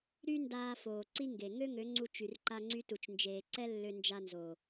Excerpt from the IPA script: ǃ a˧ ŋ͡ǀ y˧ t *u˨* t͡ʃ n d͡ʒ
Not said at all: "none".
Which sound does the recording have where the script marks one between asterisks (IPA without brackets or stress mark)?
u˨